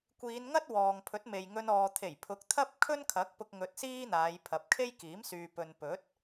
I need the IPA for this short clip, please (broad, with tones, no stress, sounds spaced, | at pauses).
kʷ iː˨˧ n ŋ ɐ˥ t̚ w ɔː˨ ŋ pʰ ɵ˨˥ t̚ m e˨ j ŋ ɵ˧ n ɔː˨ t̪ʰ e˨˩ j pʰ ʊ˨˥ k̚ t̪ʰ ɐ˥ p̚ kʰ ɵ˥ n kʰ ɐ˨˥ k̚ p ʊ˧ k̚ ŋ ɵ˧ t̚ s iː˥ n̪ aː˨˧ j pʰ ɐ˨˥ p̚ kʰ e˥ j k iː˨˥ m s yː˨ p ɵ˨ n p ɵ˨˥ t̚